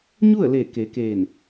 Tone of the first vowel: falling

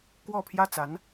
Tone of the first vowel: falling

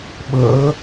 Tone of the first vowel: rising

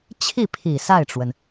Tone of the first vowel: falling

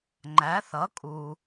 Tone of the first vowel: rising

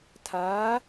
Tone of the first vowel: rising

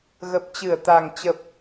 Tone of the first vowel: low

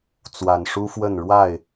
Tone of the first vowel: low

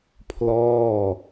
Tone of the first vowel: falling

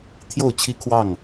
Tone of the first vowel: falling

